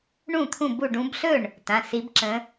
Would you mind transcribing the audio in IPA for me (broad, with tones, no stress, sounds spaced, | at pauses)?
ɳ ũ˥˩ t̪ʰ ũ˥˩ b u˥˩ ɖ ũ˨˦ b ɬ ɵ˥˩ ɳ | t ã˩˧˩ s i˨˦ b ǁ ə̃˨˦